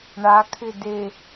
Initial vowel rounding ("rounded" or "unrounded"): unrounded